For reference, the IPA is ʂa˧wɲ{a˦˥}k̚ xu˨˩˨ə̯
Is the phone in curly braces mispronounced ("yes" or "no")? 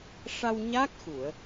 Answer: no